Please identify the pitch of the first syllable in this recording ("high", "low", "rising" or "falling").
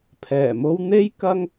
low